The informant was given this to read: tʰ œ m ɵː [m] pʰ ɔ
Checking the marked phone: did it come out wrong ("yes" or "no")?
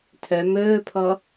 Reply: yes